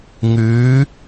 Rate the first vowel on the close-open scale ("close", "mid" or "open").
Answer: close